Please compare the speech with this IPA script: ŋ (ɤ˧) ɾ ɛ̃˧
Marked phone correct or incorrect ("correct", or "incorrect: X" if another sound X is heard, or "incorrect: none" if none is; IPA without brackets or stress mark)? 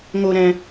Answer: incorrect: o˧